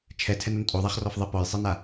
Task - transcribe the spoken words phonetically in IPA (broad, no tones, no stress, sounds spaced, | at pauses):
t͡ʃʰ ɛ tʰ ɛ n o n tʼ o ðˤ a χ r ɔ f ðˤ e p ɔ j sˤ e n a